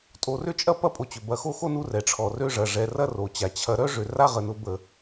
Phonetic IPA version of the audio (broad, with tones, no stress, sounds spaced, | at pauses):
tʼ o˨ r ʏ˥ t͡ʃʼ ɐ˥ p ɐ˦ pʼ o˨ t͡ɕ ʏ˩ b ɐ˨ x o˦ x o˦ n u˦ r ɛ˩ ʈ͡ʂʰ ɔ˩ r ø˦ ʐ ɐ˩ ʐ ɛ˨ r ɐ˦ r o˩ t͡ɕ a˩ t͡ɕʰ ɐ˨ ɾ œ˥ ʐ ʏ˩ r a˥ ʁ ə˨ n ʊ˦ b ə˨